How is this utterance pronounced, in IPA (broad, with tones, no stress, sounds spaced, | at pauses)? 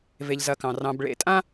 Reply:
v e˨ ʎ z ɐ˨ k ɑ̃˩ r ɑ̃˨ b ɭ ḛ˨ tʼ ã˦